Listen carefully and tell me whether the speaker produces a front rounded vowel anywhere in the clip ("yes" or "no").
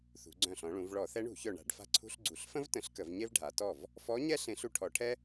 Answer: yes